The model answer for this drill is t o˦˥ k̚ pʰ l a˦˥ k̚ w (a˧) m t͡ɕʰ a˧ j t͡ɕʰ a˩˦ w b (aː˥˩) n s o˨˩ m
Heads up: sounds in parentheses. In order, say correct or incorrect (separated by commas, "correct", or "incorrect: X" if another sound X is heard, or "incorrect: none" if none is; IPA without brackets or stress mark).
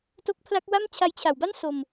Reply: incorrect: a˥˩, incorrect: a˥˩